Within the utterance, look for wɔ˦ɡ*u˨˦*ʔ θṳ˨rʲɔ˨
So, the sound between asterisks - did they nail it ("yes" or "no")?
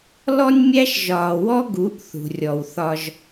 yes